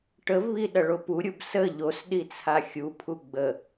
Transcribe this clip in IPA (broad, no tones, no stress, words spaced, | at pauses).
ʈəvβi ɗɐɭopuɾʲub sə ʎos ɗit͡sʰaxʲupʰu ɡ͡bə